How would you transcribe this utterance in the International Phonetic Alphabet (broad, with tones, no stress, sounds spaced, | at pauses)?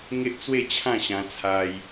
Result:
ŋ e˦ ʔ t͡s w e˥˧ t͡ɕʰ ã˥˧ ɕ ã˧ t͡sʰ a˧ j